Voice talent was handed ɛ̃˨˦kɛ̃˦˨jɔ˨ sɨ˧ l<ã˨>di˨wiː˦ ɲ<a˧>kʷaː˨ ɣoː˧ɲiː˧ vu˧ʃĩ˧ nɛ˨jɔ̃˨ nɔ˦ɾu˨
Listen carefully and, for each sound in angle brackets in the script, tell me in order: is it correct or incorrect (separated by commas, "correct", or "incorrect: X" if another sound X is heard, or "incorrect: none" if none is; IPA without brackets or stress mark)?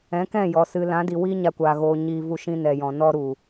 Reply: incorrect: ã˨˦, correct